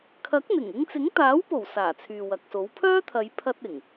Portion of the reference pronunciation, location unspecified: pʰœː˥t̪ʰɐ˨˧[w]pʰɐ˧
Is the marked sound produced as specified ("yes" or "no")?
no